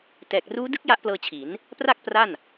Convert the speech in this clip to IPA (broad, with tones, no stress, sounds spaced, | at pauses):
t ɛː˨˩ k̚ r uː˦˥ d ɯ˦˥ k̚ j a˦˥ ʔ p l ɤː˧ t͡ɕʰ i˩˦ n | p r a˥˩ k̚ p r a˥˩ n